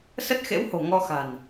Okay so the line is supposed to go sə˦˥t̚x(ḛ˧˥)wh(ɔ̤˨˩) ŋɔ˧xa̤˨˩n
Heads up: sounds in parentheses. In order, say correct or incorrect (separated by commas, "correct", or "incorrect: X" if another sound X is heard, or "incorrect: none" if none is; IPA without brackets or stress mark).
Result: correct, incorrect: o̤˨˩